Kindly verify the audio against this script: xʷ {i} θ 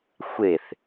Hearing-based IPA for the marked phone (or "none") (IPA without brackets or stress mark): e